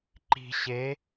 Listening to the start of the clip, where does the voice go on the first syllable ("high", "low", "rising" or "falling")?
low